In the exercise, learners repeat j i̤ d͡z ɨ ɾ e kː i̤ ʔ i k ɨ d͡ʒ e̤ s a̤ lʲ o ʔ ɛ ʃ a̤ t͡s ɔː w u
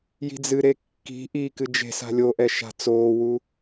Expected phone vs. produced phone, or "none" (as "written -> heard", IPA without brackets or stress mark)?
ɔː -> oː